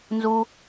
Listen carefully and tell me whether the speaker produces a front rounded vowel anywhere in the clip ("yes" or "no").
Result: no